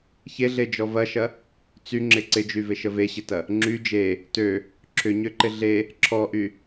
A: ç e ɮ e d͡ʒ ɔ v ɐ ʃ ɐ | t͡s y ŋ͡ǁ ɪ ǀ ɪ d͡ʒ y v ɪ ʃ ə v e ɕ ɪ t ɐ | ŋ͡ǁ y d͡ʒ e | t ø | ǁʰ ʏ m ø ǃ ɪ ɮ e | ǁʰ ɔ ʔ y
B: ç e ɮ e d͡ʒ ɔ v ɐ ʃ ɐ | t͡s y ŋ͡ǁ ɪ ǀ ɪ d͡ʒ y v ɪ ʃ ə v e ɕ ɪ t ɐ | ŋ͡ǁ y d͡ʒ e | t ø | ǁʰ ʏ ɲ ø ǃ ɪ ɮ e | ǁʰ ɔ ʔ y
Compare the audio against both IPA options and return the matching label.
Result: B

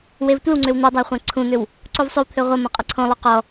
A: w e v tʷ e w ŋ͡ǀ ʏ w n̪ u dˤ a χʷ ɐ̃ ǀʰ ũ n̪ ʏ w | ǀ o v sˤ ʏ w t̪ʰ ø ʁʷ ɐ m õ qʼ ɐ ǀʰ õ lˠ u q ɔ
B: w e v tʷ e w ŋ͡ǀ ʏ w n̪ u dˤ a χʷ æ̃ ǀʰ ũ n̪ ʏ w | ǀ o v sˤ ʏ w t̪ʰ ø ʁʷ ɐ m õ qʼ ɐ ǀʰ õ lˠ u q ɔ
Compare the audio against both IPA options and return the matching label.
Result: A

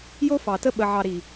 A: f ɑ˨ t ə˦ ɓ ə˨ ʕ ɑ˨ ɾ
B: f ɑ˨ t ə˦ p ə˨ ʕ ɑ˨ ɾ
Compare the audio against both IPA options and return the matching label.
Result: A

